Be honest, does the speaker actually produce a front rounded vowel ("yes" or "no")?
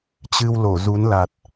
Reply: no